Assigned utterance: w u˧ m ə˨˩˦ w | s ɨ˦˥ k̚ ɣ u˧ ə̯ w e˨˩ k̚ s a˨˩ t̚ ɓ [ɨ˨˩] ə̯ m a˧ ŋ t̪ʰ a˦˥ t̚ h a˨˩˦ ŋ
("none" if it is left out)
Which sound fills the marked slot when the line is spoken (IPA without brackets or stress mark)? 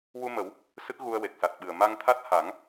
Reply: ɨ˨˩